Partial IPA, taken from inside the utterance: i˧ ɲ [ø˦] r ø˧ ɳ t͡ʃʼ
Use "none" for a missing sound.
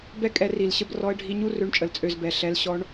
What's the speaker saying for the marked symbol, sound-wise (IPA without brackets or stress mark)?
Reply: u˦